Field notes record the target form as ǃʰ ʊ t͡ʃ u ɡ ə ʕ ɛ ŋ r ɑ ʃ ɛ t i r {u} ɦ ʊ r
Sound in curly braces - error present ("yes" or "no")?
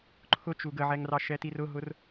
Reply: yes